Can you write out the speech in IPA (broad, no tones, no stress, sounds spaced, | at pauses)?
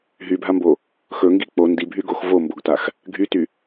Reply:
ɦ y bʱ a m b o | x ɵ ŋ ɡ i k͡p o n d i bʱ y ɡ o x v o m b o ɡ t a x | ɡʱ y t y